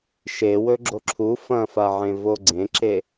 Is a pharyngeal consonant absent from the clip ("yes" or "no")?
no